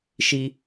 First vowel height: high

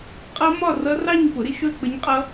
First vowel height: mid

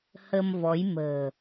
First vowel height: mid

